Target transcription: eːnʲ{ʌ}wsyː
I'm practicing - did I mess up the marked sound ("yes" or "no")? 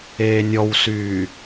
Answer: yes